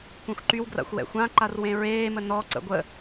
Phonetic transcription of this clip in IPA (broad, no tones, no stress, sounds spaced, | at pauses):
kʷ ẽ xʷ ǃ y w ɡ r a̰ xʷ w ɛ̰ xʷ ã ǃ a r w ẽ ɹ eː m ə n ɔ ǀ ə̰ ɡʷ ə